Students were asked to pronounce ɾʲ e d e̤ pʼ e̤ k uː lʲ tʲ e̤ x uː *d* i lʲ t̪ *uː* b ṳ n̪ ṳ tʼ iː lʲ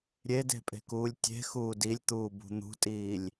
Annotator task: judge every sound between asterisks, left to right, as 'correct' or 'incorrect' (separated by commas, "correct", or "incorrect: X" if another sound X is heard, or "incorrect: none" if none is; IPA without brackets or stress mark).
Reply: correct, correct